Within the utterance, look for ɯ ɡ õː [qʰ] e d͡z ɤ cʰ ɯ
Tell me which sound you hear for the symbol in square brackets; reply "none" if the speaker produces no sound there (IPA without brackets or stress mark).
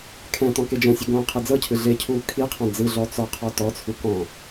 qʰ